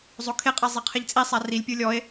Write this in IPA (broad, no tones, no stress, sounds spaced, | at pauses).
zˤ o kʰ e qʼ a zˤ e qʰ e ʎ t͡sʼ i sˤ a r i lʲ pʲ u lʲ ɔ e̯